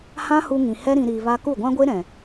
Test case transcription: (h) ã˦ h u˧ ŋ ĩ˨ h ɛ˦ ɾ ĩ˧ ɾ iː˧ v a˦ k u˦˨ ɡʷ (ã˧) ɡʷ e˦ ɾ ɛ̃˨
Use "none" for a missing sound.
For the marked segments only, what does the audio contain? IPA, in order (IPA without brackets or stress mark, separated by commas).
h, ã˦